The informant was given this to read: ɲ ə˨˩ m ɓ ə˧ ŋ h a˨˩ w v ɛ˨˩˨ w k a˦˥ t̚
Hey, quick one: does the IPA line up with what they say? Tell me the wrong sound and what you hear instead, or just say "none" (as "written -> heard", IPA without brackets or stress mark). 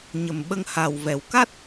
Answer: none